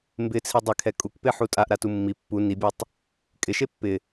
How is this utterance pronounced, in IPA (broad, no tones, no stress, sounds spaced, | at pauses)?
m b ɪ t͡sʰ i dˤ ɪ kʰ ɛ kʼ u k p e ħ u tʼ a ʔ ɾ a t u mː i pː u n i bʲ e tˤ | kʼ ɪ ʃ e pː ɪ